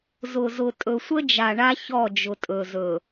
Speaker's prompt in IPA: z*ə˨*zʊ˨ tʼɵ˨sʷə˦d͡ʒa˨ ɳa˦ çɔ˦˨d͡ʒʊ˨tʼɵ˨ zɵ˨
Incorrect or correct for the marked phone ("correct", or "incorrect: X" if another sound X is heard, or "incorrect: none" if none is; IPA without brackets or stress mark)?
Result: incorrect: ʊ˨